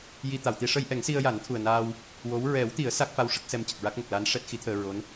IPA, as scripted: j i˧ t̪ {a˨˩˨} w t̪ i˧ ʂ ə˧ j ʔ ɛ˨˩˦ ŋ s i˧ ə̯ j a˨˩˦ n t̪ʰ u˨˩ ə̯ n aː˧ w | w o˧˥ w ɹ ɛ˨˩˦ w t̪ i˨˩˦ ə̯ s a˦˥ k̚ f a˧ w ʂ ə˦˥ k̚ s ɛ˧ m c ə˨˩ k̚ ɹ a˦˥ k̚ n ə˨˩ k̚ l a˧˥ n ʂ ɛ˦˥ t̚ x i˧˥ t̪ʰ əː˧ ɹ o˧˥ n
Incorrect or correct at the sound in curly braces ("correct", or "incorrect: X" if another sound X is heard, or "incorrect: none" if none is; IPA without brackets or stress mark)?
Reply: correct